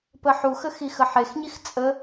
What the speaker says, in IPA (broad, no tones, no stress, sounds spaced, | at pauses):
p ə ħ u x ə x i x ə ħ e x ɲ i x t͡sʼ ə